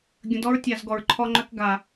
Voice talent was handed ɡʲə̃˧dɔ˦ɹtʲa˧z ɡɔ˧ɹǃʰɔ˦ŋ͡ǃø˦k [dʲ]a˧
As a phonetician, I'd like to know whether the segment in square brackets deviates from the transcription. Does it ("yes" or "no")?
yes